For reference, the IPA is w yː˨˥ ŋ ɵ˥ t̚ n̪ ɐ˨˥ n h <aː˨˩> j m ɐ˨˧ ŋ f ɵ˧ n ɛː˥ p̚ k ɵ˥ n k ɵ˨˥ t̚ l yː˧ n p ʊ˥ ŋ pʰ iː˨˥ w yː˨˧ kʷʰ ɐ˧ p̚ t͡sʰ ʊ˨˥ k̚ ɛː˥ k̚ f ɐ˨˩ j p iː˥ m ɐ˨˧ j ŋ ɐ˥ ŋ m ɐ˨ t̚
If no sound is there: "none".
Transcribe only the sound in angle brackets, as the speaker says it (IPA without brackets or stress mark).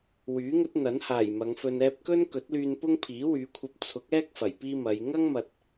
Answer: aː˨˩